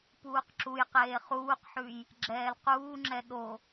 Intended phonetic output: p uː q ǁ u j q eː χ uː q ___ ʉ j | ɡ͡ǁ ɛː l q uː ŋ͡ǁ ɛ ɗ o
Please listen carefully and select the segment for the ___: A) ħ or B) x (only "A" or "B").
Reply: A